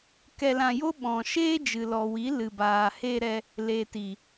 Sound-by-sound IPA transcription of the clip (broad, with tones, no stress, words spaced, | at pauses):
kɛ˧lã˧jo˦ ɓɔ̃˨ʃeː˦d͡ʒɨ˨ lɔ˨wi˨˦ lɨ˨baː˨he˧ɾɛ˧ | le˨ti˨